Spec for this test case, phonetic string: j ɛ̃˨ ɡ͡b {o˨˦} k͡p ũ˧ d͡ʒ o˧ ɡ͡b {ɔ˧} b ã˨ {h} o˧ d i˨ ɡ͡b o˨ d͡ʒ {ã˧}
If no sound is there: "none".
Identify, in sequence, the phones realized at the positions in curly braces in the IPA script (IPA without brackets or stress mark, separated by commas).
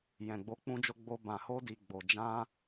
o˨˦, o˧, h, ã˧